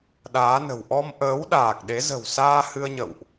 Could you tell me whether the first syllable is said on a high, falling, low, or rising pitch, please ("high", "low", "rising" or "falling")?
rising